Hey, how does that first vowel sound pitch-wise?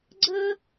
high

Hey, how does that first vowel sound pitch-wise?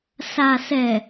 low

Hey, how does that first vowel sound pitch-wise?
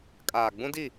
low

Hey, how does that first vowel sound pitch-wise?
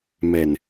low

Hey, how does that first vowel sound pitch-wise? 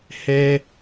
high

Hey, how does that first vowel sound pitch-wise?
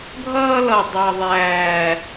high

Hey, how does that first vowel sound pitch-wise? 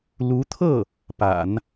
rising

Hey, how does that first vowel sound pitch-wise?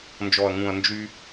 low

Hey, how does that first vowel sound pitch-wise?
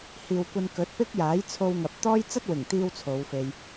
low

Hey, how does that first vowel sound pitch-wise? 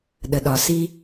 low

